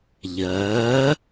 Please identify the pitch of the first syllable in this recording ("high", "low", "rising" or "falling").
rising